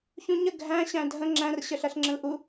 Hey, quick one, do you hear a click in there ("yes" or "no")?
yes